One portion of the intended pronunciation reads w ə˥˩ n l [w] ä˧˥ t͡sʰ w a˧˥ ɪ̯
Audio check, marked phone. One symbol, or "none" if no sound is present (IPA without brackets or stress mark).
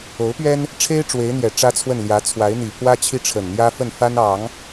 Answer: j